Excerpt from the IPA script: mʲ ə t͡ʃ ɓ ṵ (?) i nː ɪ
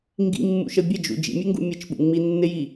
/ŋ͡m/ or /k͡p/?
ŋ͡m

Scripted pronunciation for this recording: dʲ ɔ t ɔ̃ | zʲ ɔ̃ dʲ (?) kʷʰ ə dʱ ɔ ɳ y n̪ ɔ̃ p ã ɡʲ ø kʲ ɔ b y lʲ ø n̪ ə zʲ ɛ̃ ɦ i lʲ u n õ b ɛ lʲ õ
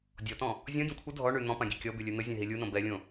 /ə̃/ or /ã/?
ə̃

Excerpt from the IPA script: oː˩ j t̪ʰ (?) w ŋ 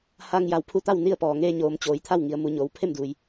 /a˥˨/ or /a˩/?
a˥˨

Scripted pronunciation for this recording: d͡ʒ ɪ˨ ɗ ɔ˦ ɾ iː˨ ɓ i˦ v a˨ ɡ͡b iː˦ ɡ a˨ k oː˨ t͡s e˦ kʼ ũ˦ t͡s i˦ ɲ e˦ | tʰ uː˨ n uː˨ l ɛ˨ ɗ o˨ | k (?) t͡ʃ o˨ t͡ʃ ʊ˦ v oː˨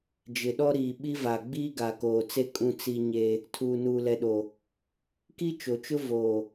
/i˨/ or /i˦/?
i˦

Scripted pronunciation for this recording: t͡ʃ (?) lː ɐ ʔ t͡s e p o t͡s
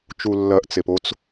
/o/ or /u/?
u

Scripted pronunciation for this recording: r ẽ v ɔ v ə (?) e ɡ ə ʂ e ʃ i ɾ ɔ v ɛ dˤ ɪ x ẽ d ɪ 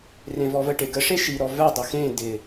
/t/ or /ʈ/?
ʈ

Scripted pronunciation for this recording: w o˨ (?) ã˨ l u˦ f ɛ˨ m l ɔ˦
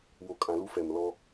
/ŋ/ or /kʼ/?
kʼ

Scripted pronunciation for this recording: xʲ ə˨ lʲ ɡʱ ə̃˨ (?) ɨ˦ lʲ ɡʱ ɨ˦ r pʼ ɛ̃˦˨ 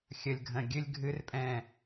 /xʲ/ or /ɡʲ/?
ɡʲ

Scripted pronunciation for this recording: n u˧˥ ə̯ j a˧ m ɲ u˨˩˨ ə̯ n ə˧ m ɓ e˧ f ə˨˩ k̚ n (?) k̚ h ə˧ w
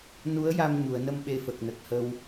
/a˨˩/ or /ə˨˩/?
ə˨˩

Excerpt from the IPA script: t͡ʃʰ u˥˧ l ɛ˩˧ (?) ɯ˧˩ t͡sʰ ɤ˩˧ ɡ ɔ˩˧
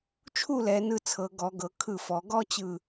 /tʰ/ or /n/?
n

